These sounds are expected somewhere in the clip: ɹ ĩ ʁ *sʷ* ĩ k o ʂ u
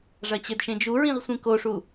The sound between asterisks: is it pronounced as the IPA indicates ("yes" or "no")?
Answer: yes